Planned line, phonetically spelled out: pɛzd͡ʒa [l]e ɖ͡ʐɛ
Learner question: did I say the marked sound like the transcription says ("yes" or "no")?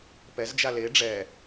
yes